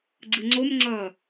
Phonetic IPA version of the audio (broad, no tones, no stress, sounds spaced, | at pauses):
ɡ͡ǀ ɯ ŋ͡ǀ o m ŋ͡ǀ ʌː